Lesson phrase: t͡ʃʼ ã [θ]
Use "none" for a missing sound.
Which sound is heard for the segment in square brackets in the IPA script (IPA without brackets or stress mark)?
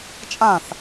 θ